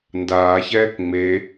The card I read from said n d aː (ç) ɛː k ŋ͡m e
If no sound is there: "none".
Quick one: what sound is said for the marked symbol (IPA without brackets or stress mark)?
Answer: ç